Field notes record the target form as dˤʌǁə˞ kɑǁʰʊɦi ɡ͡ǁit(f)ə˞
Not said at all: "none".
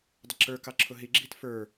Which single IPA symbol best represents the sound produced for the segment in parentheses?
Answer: f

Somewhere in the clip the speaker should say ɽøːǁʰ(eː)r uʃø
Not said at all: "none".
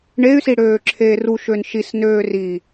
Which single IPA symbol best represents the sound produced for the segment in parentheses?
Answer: eː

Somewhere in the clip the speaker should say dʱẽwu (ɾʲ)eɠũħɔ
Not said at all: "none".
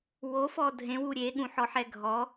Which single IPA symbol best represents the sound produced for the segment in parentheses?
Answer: ɾʲ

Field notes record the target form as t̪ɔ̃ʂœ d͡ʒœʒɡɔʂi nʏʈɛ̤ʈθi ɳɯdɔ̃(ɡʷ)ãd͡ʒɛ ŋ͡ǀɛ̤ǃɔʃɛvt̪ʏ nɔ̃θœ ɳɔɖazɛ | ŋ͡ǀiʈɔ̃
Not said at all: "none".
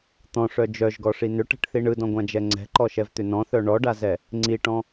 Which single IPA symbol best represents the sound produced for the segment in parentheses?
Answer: ɡʷ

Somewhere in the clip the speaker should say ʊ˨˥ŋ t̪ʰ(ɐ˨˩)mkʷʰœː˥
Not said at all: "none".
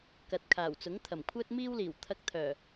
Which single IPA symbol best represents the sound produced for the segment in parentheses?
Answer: ɐ˨˩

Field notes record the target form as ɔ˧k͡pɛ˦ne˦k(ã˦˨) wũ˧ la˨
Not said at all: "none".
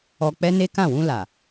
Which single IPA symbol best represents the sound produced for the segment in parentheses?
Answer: ã˦˨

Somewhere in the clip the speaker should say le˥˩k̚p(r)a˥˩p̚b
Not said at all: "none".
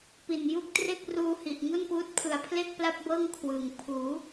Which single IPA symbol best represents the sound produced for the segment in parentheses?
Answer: l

